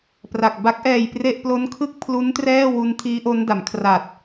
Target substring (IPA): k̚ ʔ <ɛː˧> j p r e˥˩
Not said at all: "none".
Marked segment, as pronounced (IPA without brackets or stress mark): ɛː˧